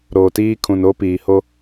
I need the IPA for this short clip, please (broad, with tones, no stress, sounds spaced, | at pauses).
ɾ oː˨ t iː˦ kʰ ũ˨ n o˦ p iː˨ h o˦